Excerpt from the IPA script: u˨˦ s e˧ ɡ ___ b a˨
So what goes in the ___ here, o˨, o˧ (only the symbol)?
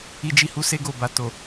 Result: o˨